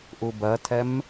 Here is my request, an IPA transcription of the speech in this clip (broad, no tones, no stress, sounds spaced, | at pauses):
ʔ u b ɜ tʰ ɛ m